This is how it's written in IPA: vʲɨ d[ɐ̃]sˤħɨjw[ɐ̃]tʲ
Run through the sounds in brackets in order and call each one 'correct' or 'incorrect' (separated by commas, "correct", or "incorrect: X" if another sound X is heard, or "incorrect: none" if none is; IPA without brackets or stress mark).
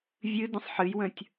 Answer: incorrect: ə̃, incorrect: ə̃